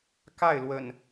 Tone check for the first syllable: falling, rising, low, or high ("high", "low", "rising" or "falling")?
falling